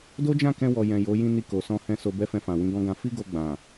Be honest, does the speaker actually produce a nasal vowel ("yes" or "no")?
yes